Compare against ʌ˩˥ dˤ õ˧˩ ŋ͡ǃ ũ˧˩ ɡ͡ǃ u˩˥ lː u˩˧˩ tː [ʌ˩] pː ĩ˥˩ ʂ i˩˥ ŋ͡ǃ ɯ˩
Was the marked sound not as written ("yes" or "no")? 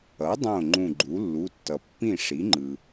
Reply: no